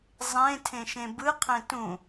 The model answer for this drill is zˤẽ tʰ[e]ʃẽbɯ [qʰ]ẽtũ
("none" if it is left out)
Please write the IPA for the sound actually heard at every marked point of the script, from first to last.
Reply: ẽ, qʰ

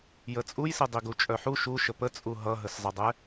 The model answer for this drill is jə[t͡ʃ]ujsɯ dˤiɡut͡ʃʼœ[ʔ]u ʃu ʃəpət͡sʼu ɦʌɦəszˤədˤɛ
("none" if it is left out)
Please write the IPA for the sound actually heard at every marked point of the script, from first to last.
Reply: t͡sʼ, ħ

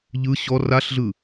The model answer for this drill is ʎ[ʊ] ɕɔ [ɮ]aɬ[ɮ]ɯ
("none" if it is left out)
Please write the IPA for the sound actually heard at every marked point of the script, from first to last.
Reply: ɯ, r, ɮ

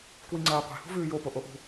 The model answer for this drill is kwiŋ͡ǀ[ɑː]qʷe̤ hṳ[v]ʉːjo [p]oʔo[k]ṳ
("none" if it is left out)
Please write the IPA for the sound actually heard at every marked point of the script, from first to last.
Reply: ɐː, v, p, ʔ

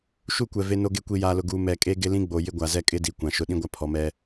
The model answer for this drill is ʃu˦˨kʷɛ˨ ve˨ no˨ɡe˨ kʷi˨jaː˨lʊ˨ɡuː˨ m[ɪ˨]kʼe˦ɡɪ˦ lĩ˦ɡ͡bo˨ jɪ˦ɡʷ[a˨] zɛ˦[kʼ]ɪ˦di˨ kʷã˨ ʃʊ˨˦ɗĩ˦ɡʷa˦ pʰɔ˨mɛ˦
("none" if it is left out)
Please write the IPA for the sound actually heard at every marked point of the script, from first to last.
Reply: ɛ˨, a˨, kʼ

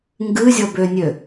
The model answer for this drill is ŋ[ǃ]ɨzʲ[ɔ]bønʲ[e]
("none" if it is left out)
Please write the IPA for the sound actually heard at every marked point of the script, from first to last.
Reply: ɡ, ɔ, ø

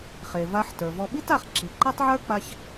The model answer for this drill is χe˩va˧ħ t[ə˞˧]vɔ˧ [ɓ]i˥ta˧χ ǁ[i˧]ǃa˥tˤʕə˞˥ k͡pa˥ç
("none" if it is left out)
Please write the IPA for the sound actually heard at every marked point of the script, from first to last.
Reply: ə˞˩, ɓ, i˩

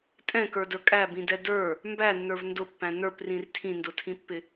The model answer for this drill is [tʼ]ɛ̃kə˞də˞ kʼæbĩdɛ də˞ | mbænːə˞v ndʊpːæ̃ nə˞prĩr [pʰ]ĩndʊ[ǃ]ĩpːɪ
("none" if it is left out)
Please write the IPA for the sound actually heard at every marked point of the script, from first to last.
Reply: tʼ, tʰ, tʰ

